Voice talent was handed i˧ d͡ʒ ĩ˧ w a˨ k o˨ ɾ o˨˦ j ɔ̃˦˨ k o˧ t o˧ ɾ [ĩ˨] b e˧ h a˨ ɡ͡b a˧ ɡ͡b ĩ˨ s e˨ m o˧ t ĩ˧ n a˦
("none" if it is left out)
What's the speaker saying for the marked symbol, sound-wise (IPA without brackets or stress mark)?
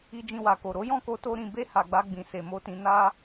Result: ĩ˨